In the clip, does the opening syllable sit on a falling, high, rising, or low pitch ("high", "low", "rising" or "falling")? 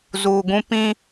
low